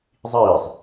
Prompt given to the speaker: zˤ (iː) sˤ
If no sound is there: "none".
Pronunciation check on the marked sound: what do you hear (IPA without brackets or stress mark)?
iː